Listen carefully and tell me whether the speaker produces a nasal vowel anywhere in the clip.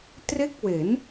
no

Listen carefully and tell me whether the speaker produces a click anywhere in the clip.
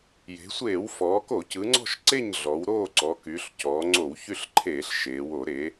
yes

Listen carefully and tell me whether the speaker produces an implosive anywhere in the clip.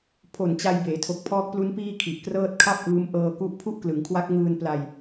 no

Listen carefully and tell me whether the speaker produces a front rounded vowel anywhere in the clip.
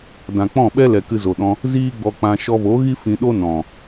no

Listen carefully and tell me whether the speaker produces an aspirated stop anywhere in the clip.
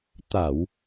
no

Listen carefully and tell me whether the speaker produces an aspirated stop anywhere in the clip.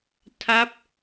yes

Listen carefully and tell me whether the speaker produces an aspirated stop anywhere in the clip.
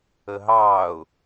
no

